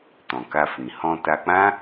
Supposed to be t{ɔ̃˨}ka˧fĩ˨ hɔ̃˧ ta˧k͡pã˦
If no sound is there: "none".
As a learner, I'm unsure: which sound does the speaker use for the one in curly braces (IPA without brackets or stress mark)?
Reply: ɔ̃˨